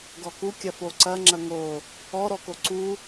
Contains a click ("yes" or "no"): yes